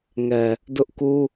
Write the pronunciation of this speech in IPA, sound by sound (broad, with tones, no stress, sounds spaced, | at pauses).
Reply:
ŋ ɛ˨ | d ʊ˦ ʔ k u˦